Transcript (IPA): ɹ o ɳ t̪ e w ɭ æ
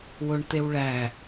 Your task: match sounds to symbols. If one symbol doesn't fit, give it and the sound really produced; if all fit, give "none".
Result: ɹ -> w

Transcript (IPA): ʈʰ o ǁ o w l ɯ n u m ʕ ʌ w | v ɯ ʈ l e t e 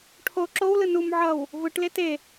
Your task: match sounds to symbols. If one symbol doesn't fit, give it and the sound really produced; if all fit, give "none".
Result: none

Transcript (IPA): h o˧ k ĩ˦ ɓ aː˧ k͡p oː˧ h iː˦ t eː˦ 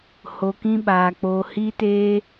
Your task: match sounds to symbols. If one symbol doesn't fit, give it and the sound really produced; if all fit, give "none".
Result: none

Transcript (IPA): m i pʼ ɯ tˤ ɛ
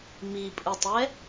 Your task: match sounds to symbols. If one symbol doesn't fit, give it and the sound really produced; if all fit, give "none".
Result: none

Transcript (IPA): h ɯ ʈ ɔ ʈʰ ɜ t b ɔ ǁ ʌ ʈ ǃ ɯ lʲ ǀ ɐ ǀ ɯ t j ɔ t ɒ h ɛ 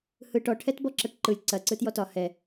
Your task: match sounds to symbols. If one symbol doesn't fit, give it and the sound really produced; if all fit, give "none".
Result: ɜ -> ɛ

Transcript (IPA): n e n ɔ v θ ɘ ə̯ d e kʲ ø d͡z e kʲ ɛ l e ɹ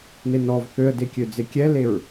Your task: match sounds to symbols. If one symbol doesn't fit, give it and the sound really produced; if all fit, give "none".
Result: ɘ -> ø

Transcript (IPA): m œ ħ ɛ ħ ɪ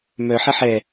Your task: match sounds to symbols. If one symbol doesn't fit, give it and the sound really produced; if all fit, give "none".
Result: ɪ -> ɛ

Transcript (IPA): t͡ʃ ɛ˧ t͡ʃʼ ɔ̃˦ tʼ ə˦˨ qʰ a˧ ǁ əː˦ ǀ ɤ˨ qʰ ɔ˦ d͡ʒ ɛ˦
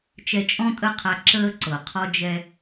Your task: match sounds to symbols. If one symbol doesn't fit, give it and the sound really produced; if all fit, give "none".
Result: none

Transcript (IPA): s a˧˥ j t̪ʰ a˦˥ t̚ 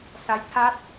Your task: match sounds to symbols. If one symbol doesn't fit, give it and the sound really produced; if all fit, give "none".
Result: none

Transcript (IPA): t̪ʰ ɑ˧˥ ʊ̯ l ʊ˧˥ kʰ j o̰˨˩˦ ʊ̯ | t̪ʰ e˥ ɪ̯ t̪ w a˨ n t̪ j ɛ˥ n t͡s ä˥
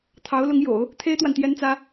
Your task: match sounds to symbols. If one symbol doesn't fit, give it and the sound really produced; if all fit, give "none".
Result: kʰ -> ŋ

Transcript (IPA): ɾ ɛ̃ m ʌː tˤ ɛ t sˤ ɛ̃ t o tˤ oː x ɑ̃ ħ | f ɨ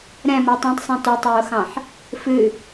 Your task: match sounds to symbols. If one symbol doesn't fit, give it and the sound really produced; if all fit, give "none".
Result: ɛ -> ɛ̃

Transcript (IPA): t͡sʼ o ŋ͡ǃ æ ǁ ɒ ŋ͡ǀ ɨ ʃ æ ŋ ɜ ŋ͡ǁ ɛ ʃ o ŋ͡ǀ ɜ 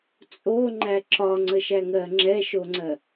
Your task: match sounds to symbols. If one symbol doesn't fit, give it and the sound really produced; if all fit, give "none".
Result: ɨ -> ə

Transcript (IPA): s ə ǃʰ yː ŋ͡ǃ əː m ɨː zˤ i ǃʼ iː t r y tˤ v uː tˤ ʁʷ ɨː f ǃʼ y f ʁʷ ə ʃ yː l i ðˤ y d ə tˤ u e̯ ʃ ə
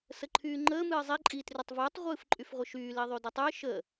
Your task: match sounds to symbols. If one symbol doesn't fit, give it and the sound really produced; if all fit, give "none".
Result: none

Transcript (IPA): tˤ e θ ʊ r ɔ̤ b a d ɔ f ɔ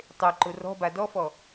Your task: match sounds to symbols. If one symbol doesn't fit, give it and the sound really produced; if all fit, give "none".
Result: θ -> ǃ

